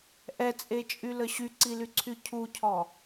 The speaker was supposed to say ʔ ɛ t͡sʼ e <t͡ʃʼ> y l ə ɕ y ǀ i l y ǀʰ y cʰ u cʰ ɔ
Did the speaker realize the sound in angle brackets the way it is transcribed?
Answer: yes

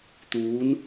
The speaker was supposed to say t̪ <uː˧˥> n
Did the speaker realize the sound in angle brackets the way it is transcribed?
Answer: yes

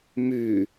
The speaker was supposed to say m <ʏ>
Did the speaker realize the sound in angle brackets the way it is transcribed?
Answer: no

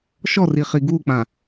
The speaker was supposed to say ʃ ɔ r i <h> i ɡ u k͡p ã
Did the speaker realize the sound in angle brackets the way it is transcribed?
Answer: no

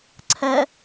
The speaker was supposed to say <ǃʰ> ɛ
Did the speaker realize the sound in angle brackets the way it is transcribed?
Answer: no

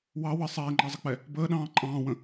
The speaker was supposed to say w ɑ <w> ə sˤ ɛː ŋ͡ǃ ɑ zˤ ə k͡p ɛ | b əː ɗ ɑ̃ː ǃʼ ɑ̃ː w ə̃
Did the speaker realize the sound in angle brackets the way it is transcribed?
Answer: yes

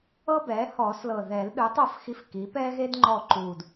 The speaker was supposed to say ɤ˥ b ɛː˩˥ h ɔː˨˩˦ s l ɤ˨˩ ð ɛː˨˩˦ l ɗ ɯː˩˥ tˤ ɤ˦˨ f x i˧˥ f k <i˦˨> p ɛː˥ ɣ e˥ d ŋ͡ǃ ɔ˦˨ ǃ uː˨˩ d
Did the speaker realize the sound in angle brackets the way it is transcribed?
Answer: no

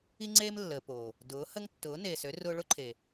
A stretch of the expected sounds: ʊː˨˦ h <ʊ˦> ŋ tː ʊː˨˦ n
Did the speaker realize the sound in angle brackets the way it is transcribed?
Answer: no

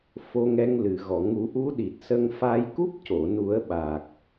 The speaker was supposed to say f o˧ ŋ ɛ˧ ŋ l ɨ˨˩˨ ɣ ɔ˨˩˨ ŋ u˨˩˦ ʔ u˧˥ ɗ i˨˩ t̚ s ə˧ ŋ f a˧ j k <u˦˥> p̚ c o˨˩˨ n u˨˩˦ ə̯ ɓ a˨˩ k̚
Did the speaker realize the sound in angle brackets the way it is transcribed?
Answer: yes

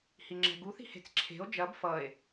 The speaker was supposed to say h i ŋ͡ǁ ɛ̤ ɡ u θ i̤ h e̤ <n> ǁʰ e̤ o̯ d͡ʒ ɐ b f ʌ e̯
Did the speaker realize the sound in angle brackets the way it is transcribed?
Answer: no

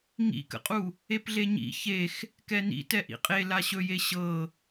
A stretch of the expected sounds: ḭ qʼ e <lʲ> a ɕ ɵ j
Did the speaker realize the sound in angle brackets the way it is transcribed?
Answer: no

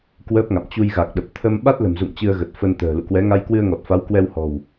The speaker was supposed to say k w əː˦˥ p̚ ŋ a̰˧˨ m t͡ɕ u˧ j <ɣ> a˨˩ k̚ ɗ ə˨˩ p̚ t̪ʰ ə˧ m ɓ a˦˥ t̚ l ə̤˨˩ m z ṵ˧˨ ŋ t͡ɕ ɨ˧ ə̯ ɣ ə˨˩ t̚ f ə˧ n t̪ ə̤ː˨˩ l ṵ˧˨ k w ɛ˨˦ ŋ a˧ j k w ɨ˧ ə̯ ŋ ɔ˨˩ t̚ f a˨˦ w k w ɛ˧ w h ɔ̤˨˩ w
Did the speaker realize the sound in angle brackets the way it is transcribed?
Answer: yes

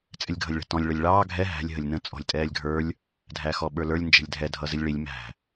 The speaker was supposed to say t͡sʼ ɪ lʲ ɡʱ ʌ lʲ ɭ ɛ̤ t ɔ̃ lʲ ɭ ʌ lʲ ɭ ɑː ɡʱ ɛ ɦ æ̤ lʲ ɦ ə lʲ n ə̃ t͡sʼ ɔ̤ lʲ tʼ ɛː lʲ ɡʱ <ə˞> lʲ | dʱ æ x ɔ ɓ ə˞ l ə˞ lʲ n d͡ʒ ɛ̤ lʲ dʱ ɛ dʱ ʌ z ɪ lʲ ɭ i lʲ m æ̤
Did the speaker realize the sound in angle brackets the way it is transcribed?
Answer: yes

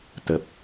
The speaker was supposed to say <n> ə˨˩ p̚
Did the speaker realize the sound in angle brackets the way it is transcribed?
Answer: no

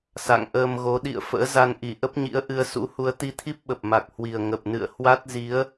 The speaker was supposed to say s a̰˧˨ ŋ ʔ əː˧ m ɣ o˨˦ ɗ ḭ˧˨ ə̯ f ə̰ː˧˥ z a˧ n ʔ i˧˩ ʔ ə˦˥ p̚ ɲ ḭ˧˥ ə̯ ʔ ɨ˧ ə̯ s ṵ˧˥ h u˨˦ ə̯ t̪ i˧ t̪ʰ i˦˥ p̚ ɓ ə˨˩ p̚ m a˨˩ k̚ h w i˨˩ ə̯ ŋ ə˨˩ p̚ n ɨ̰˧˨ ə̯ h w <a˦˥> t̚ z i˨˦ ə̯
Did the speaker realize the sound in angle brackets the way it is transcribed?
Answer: yes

